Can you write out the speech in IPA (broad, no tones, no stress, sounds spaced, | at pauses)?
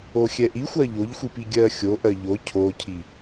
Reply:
o xʲ ɛ ʔ i xʷ ɜ ʎ o ʎ xʷ i p i ɡʲ ɜ xʲ o ʔ ɜ ʎ o cʰ o cʰ i